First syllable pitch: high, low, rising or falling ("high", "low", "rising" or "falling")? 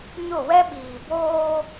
falling